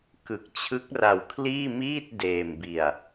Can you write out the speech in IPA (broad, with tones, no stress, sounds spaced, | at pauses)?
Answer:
k ɯ˨˩ k̚ t͡ɕʰ ɯ˦˥ k̚ r a˧ w kʰ l iː˥˩ m iː˥˩ t̚ d eː˧ m b i˧ a̯